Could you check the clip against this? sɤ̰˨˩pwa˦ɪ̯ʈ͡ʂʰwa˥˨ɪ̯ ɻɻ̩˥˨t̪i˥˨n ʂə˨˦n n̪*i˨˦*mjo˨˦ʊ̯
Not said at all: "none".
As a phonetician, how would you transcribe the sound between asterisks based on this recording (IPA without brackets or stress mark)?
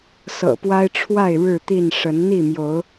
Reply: i˥˨